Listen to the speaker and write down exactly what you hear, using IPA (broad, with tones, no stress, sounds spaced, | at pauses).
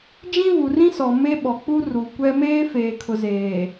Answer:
d͡ʒ ĩ˦ v u˨ r ĩ˦ s ɔ˨ m e˦ ɓ ɔ˨ k͡p u˦ r u˨ kʷ ɛ˦ m eː˦ f eː˨ kʰ ʊ˨ z eː˨